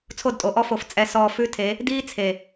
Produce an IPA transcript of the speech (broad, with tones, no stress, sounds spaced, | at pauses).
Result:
t͡sʰ o˦˨ d tʼ o˨ ʔ ɔ˦ f o˨ f t͡sʼ ɛ˨ s ɔː˨ f ʉ˦ tʰ e˨˦ | d iː˦ t͡sʰ e˨